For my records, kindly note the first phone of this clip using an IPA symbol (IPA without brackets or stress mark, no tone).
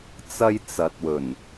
t͡s